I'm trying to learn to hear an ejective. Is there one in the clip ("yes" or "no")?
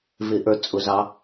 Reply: yes